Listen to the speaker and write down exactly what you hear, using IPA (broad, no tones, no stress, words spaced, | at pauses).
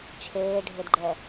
t͡ʃʰeːɖʱedɡ͡ǃɛ